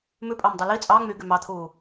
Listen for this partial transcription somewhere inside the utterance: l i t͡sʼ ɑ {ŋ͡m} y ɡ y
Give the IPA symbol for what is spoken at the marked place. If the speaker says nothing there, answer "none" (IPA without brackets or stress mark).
ŋ͡m